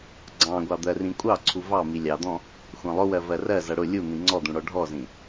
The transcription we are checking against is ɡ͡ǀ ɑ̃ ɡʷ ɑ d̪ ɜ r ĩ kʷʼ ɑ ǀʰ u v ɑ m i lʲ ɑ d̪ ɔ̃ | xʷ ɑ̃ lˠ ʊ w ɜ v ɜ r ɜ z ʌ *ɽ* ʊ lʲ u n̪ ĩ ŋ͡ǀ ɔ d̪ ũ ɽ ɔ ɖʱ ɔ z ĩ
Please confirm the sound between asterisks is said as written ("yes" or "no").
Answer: yes